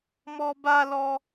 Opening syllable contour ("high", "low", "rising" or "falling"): high